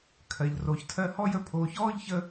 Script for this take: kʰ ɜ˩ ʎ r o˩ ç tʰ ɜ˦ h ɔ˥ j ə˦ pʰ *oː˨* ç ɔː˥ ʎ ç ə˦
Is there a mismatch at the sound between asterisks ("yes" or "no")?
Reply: no